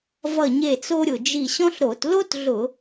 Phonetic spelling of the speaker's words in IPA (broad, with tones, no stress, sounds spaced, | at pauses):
v ʌ˧˩ ɲ e˧˩ t͡s o˧ ɾʲ ʊ˩ d͡ʒ i˧˩ ɕ ɔ̃˥ ɬ ɾ o˧˩˧ t l o˥ t ɮ ʊ˧˩˧